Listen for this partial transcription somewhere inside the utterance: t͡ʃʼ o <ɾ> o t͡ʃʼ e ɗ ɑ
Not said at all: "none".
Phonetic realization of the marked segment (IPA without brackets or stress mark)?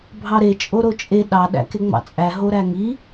ɾ